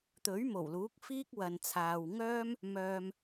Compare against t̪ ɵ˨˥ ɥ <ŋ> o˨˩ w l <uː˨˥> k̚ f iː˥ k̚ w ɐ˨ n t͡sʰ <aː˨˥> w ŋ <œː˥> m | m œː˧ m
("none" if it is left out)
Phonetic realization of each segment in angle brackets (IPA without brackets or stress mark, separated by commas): m, uː˨˥, aː˨, œː˥